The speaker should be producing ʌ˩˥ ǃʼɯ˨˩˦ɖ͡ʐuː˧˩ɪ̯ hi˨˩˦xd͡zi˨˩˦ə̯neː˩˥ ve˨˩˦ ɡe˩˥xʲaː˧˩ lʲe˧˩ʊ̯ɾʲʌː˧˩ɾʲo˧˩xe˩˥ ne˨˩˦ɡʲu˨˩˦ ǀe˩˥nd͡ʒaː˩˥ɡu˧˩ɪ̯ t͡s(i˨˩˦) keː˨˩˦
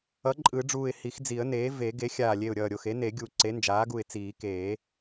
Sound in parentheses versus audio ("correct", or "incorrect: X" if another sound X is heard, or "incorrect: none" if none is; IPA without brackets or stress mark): incorrect: iː˨˩˦